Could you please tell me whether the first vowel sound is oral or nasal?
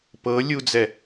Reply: oral